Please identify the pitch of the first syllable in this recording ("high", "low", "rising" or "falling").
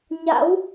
rising